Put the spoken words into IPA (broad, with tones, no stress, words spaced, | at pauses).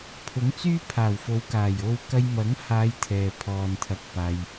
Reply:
pʰʊ˨˥ŋt͡syː˥pʰaː˨˩wfo˨˧w kaː˨˩jo˧w kɐ˧jmɐ˨˥ŋhaː˨˧j t̪ʰɛː˨pʰɔː˨nt̪ʰɐ˧k̚ paː˧j